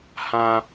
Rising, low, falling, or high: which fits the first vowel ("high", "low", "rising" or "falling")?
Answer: low